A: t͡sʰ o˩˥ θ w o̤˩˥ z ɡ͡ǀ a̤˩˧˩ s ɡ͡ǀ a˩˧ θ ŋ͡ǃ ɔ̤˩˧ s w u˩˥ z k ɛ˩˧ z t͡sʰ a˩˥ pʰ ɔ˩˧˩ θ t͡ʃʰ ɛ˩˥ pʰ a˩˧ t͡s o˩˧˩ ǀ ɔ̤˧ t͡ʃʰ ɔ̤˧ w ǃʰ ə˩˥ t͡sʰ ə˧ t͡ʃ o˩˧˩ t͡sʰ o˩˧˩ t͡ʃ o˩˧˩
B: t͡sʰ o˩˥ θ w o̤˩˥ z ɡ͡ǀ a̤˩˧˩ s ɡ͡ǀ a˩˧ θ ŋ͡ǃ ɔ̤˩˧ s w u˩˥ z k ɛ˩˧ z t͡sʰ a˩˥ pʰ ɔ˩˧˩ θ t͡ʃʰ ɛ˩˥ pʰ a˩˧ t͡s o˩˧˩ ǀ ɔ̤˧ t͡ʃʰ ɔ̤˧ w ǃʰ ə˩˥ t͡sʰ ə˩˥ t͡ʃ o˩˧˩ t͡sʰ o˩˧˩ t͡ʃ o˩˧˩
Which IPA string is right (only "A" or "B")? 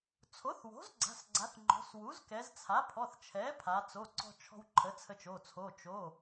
A